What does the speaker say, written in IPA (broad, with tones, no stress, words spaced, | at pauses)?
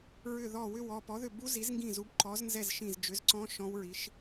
ɹʏ˦˨ðɔ˦˨ wʏ˦˨wɔ˦˨ pɔ˨˥ðʏ˦˨ bu˦˥zi˨˥zŋɡĩ˦˨zu˨˥b ǃɔ˨˥znzɛ˦˨z ʃĩ˦˨z d͡ʒʏ˨˥zǀɔ̃˦˥ ʃɔ̃˦˥wɹi˨˥ʃ